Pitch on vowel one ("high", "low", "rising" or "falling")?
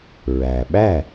low